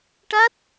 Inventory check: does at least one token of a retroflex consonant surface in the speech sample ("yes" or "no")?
yes